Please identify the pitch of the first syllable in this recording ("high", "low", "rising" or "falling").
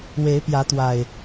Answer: rising